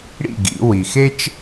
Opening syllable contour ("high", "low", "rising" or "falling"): falling